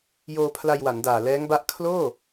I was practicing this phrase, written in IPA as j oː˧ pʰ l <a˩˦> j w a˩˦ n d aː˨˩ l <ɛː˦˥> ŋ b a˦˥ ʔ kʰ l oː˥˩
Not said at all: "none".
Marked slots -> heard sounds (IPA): a˧, ɛː˦˥

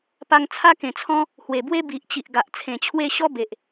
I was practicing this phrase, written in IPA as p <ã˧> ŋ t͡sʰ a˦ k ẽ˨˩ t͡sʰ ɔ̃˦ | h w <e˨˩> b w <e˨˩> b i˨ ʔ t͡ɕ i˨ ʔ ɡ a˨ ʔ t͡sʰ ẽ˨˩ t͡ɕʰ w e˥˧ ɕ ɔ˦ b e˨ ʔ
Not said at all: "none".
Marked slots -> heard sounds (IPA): a˧, e˨˩, e˦

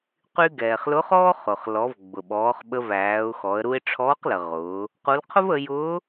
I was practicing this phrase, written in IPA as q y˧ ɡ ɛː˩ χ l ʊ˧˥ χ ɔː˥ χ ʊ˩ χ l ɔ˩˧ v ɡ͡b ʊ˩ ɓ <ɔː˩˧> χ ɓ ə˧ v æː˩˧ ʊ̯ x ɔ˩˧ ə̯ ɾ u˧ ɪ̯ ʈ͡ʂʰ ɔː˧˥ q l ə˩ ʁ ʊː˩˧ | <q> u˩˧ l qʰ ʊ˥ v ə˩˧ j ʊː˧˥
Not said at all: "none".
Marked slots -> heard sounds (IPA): ɔː˩˧, q

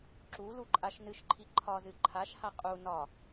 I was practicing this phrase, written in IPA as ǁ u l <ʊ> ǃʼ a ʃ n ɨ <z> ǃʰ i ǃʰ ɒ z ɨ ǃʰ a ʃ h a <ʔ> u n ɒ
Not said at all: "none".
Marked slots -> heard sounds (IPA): u, ʃ, qʼ

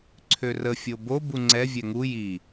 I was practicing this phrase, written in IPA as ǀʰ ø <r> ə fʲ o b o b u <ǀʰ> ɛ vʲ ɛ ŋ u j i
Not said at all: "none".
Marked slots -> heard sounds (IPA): r, ŋ͡ǀ

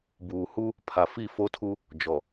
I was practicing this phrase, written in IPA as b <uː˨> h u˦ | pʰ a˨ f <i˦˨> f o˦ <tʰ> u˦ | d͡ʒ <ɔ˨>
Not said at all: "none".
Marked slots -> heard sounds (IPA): uː˨, i˦˨, tʰ, ɔ˨

